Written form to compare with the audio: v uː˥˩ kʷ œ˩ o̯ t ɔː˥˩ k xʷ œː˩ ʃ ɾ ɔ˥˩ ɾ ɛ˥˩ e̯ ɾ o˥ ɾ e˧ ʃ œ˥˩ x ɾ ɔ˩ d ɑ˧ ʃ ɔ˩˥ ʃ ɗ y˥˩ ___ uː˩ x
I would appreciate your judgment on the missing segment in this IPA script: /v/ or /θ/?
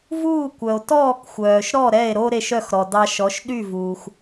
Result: v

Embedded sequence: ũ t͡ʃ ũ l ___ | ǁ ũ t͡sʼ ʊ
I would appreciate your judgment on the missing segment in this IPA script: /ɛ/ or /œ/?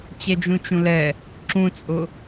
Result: ɛ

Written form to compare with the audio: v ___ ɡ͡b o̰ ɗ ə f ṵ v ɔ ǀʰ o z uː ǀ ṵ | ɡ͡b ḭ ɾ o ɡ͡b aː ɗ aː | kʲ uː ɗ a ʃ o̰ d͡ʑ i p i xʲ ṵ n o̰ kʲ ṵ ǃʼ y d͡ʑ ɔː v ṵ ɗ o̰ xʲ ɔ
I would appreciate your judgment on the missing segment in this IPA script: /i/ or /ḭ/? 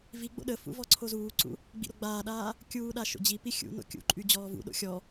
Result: i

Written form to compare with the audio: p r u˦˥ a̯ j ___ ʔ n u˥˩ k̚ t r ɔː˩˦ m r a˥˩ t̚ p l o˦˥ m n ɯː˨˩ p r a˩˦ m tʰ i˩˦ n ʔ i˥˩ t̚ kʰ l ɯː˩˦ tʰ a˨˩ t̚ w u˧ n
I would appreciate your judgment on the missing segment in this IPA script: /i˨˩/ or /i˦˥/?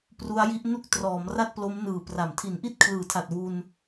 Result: i˦˥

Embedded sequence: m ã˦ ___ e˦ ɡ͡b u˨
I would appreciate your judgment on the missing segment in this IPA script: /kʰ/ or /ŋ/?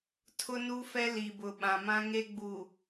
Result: ŋ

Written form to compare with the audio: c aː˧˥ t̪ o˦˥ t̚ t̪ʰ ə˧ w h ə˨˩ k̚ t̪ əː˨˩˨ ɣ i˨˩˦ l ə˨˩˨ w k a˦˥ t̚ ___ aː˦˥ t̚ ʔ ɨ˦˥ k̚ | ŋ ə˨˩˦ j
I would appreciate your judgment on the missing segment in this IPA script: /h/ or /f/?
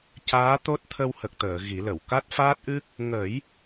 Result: f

